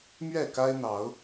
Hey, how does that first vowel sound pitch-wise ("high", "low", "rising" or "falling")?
falling